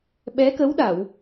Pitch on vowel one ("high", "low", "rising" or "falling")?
rising